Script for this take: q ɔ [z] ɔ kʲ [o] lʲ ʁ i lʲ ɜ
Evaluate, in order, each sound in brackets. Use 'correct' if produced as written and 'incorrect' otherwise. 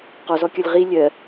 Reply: correct, incorrect: ɔ

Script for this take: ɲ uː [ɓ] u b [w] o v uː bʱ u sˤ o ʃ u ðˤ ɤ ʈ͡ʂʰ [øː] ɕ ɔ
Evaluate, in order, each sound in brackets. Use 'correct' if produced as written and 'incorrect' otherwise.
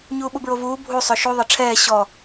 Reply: correct, incorrect: ɹ, incorrect: ɛː

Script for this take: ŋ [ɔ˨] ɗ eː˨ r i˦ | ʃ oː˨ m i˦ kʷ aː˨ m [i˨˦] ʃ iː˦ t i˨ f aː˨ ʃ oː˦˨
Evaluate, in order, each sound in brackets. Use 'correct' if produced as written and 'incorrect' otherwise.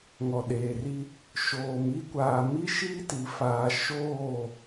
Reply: correct, incorrect: i˦

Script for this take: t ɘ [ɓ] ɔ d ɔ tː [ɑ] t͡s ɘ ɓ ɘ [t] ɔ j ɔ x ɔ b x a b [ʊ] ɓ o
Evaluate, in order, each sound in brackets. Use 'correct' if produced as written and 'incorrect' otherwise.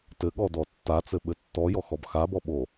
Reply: incorrect: ɠ, incorrect: a, incorrect: tː, incorrect: ɔ

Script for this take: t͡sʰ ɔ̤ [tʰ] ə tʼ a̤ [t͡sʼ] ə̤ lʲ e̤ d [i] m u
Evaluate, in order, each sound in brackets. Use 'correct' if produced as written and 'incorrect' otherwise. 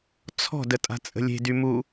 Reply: incorrect: d, correct, incorrect: y

